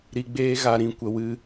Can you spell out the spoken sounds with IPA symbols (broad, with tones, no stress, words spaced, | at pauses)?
ɾi˧ɡ͡beː˦ ɣa˧ɾĩ˧ kʷə˨wɨ˧